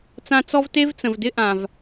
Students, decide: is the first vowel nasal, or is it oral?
nasal